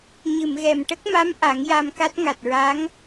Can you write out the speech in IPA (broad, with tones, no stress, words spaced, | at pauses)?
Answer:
ɲɨ˨˩˨mɣɛ˨˩m ʈə˦˥k̚ma˧˥m ʔa˨˩˦ŋja˧mka˦˥t̚ ŋa˨˩t̚ɹa˧˥ŋ